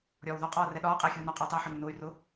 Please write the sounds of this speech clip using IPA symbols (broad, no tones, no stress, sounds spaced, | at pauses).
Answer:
ɾʲ ɒː w ð ɒ qʼ ɒː r ɛ ɗ ɒː qʼ ɛː xʲ uː n ɒ qʼ ɒ i̯ tˤ əː ħ ɒ n u n ʊː y̯ r ʊ